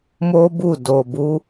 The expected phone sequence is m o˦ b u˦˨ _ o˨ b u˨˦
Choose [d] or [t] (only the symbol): d